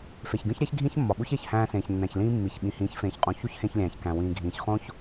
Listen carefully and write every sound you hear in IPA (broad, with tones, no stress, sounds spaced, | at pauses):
f e˨ ç ɡʲ õ˦ ç ɾʲ æ˦ ç ɡʱ ĩ˦ ç mː ɒ˨ ɓ u˦ ç e˨ ç h æ̃ː˧ s ẽː˨ ç nː æ̃˨ ç l ĩː˦ mː i˨ ç ɓ ĩ˨ h ĩː˨˦ ç f ẽː˨ ç qʼ ũ˨ ç u˦ ç h ẽ˧ ç lʲ æ̃ː˨ ç k æ̃˨ w ĩː˨ ɡʱ ĩː˨ ç χ õ˦ ç